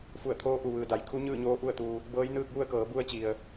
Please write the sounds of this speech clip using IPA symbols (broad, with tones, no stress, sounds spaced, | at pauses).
f u˧˩ ə̯ t̪ʰ oː˧˥ ʔ u˩ ʋ ɯː˩ d a˩˧ j kʰ u˧˥ ɲ ɯː˥˨ ɲ oː˧˥ ʔ u˥˨ ə̯ t̪ u˧ | b ɤː˧˥ j n ɯː˥˨ k̚ j u˥˨ ə̯ k ɤː˩˧ b u˧ ə̯ t͡ɕ i˩ ə̯